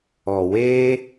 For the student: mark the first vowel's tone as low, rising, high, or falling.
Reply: low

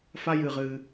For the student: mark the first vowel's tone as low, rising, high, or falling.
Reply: high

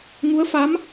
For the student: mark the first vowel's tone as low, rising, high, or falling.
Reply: rising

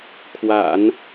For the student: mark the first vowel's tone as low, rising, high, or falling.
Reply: low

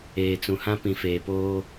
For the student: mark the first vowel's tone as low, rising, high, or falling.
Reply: low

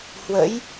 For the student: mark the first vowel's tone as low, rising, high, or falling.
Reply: rising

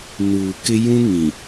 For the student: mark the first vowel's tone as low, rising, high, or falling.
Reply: low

